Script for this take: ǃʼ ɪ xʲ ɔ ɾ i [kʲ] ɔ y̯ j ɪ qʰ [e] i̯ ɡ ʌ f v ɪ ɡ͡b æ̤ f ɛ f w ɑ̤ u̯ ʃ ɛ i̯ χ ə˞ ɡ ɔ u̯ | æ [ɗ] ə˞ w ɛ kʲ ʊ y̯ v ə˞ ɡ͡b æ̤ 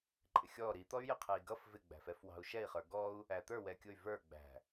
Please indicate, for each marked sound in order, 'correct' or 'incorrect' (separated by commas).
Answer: incorrect, incorrect, incorrect